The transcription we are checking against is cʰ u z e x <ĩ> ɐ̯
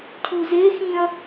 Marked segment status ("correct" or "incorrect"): correct